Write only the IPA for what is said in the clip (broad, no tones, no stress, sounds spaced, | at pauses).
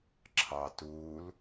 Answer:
ǁʰ ɑ t u l